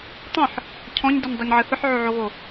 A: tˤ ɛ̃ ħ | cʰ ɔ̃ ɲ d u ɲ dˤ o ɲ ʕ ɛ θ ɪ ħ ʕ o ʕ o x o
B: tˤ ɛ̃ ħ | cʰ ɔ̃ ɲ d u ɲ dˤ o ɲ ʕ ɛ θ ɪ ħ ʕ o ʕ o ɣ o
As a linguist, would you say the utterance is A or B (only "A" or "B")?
B